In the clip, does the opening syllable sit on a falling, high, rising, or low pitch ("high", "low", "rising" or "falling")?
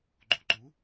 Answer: rising